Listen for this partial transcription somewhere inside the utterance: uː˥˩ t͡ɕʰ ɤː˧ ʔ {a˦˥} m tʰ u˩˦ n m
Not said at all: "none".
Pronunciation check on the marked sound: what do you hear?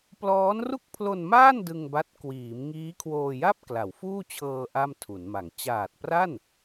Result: a˥˩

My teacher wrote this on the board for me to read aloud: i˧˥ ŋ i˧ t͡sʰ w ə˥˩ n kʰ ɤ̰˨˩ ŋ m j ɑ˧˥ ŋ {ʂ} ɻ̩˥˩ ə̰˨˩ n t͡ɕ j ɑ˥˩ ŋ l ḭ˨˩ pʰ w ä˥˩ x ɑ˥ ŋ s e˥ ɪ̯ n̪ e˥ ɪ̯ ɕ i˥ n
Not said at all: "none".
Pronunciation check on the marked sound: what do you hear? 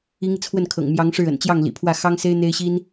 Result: ʂ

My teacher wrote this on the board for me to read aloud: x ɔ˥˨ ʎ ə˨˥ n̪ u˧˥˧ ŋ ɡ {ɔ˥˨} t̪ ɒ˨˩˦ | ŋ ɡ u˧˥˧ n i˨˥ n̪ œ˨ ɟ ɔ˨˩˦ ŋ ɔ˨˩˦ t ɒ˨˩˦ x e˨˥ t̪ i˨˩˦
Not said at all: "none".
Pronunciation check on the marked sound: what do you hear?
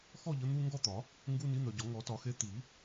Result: ɔ˥˨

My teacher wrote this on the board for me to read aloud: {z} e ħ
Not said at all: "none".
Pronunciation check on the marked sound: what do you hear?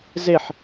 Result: z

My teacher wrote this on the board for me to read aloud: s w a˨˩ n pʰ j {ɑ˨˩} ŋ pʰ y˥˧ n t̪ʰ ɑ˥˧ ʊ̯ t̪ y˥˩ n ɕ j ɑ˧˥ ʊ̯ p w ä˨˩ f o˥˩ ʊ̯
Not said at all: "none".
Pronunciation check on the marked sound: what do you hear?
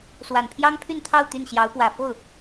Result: ɑ˥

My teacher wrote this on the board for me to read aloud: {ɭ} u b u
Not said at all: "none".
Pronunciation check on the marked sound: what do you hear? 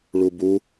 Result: ɭ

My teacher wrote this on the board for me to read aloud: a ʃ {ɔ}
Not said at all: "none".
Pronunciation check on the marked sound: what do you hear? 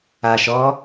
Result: ɔ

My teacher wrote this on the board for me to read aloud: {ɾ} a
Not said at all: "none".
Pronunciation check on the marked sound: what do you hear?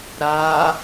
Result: ɾ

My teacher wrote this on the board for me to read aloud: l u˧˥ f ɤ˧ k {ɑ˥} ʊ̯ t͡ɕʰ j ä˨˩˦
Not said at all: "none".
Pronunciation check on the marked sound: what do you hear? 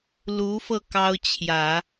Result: ɑ˥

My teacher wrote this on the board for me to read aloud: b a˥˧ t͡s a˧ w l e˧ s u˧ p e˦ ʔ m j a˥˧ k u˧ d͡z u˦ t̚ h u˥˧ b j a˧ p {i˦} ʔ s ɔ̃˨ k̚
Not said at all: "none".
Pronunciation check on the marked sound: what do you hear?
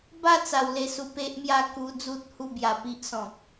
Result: i˦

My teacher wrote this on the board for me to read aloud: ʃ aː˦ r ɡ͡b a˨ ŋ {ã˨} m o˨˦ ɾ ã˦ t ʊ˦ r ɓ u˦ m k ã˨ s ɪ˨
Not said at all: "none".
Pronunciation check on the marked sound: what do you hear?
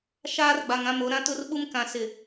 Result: ã˦˨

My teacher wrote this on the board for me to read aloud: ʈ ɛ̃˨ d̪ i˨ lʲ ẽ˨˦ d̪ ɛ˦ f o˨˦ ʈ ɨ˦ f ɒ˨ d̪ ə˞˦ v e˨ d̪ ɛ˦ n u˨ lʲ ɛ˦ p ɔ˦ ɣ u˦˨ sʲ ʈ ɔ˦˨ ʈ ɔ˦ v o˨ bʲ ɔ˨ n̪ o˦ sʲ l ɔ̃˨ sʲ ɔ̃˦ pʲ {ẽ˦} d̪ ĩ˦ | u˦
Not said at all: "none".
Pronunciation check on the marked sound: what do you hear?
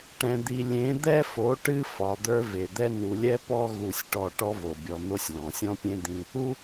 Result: ẽ˦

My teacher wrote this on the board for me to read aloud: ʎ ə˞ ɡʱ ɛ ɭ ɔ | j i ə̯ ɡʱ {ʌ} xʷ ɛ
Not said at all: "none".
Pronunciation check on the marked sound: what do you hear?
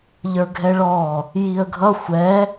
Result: ʌ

